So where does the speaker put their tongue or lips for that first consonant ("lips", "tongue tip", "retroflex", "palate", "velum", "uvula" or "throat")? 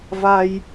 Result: lips